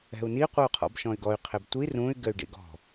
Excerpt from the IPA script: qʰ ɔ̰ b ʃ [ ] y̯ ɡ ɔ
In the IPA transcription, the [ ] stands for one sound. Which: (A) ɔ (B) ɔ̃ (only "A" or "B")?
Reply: B